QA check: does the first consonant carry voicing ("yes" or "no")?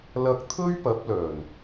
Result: yes